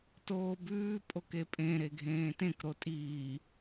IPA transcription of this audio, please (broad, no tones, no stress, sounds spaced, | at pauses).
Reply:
t oː b ʉː pʼ o k e pʼ ẽ ɾ e ɡʱ ẽː t ẽ k ɾ o tʼ iː